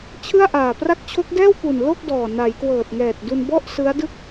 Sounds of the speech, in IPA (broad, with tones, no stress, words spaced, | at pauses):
t͡ɕʰɯ˥˩a̯ʔaː˨˩ pra˦˥k̚t͡ɕʰo˦˥k̚dɛː˥˩wpu˨˩n lo˥˩k̚dɔː˨˩ na˩˦jkwɤː˨˩t̚ŋɛː˨˩t̚du˧n bɔ˥˩ʔsɯ˦˥a̯dɯ˥˩k̚